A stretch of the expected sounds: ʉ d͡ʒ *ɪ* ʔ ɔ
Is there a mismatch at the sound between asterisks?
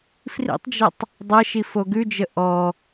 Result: yes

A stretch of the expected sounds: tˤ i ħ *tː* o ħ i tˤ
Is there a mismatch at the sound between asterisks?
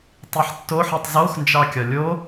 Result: no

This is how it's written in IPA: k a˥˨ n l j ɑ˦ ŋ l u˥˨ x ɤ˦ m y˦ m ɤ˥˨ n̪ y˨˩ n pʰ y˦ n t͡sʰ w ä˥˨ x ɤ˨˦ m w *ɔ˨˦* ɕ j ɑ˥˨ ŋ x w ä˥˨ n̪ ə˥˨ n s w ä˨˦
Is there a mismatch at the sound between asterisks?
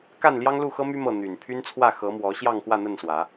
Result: no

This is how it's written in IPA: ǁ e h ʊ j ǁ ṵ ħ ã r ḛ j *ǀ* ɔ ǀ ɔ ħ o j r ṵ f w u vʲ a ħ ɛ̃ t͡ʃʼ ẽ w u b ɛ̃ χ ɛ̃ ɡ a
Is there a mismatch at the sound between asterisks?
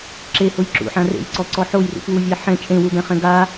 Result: no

